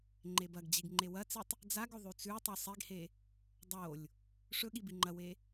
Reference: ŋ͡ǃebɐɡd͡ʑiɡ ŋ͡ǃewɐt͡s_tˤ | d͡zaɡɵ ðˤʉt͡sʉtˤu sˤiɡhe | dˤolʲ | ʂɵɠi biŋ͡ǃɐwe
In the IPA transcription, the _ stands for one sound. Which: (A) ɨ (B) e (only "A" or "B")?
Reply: A